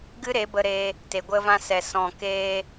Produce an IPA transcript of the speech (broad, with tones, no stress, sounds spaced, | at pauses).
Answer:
ɡ ɨ˦ ɾ e˨˦ b ə˧ ɾ eː˧ | t e˨ ɡʷ ə˧ v ã˧ s ɛ˨ s ɔ̃˨ k eː˧